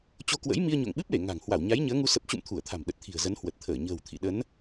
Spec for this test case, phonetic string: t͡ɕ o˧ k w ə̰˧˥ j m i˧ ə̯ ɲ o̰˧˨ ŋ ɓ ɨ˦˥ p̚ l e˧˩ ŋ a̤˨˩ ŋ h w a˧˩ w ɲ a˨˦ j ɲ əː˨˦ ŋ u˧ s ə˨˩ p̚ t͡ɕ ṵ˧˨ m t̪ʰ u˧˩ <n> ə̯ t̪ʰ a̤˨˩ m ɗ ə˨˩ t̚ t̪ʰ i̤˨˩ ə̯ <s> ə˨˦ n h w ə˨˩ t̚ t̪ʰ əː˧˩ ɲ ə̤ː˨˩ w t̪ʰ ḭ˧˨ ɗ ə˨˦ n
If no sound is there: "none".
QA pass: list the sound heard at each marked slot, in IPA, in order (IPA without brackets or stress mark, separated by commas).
none, z